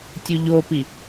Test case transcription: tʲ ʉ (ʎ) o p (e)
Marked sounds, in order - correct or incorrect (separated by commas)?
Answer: correct, incorrect